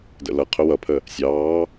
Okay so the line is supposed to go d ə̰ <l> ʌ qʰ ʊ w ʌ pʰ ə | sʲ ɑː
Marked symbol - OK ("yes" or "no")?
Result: yes